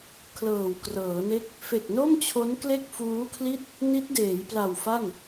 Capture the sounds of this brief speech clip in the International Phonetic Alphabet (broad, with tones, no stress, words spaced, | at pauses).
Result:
kʰlɤː˨˩wkrɤː˩˦ne˥˩k̚ | fe˨˩k̚no˥˩mt͡ɕʰo˦˥nkle˥˩k̚ fuː˦˥kʰli˥˩t̚ | ni˦˥t̚deː˩˦j pla˨˩wfa˥˩n